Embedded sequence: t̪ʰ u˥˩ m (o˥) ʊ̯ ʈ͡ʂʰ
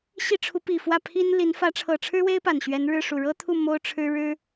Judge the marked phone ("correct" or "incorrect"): correct